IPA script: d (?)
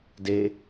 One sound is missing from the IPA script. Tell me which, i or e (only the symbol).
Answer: e